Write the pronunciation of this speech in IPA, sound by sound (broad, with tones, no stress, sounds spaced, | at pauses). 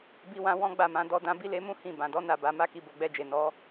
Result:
b i˧ w ã˧ w ɔ̃˦ ɡ͡b a˦˨ m ã˨˦ d ɔ˧ d ã˧ b i˦ l e˧ m ũ˦ h ĩ˦˨ b ã˨ d ɔ˨˦ n a˦˨ b a˧ m a˦ k i˧ b o˨ ɡ͡b ɛ˧ d͡ʒ e˨ n ɔ˨˦